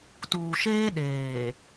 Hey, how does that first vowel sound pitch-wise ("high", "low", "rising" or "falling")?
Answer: low